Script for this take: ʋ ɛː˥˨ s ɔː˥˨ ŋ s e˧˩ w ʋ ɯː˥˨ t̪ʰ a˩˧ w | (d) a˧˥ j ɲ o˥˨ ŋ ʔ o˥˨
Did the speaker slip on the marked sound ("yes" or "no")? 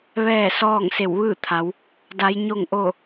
no